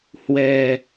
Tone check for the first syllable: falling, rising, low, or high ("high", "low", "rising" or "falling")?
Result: low